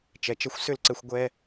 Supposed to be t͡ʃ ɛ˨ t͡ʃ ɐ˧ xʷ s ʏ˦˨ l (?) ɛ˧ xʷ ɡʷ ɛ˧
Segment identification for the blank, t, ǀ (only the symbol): ǀ